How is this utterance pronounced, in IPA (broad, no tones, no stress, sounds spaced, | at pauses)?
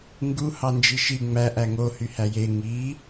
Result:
ŋ ɡ u h ɑ n d͡ʒ i ʃ i ŋ͡m æ ʔ æ ŋ o h y h æ j e ŋ i